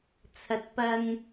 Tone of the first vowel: rising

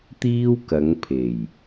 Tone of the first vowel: high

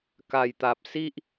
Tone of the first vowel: low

